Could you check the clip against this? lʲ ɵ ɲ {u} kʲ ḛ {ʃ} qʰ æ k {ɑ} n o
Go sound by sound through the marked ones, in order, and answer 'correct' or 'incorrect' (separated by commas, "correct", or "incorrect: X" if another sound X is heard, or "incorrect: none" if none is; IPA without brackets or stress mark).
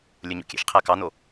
incorrect: ṵ, correct, correct